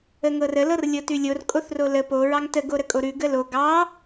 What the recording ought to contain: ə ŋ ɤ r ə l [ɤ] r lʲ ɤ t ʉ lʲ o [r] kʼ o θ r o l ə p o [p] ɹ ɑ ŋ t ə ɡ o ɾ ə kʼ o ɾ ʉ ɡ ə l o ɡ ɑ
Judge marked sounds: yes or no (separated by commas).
yes, yes, no